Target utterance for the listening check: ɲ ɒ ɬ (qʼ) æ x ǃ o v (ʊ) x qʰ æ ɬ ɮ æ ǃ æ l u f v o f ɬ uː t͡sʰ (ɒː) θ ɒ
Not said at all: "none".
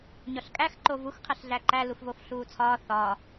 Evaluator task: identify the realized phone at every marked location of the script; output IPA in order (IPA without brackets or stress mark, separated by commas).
kʼ, u, ɒː